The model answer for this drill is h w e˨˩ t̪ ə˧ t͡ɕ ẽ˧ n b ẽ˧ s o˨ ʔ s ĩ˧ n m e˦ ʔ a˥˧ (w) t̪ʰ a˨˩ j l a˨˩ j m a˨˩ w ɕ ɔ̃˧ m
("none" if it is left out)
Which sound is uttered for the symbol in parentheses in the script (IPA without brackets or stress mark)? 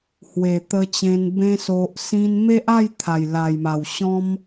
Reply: j